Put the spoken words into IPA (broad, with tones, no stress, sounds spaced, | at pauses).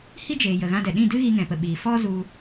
h i˦ d͡ʒ eː˨ j ə˨ ɣ ã˧ d ɛ˨ ɗ ĩ˦˨ d ɨ˦ ɣ i˧ ŋ ɛ̃˨ p ə˨ ɓ iː˨ f ɔ˦ z u˧